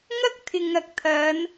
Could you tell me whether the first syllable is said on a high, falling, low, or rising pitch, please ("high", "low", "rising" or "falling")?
high